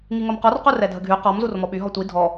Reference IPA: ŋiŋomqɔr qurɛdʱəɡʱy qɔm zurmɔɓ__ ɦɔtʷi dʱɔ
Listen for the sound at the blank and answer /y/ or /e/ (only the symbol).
y